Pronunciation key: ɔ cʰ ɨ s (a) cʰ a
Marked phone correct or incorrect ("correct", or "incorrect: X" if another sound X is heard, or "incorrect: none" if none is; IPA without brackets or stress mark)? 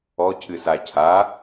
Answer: correct